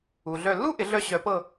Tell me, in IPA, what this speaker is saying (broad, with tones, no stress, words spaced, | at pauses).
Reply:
u˨ɮœ˦˨ lːu˥ ʔɪ˩˥ɮœ˦˨ɕœ˨˩˦pɤ˦˨